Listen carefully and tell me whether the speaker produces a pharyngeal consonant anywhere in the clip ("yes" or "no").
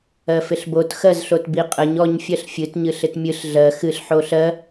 yes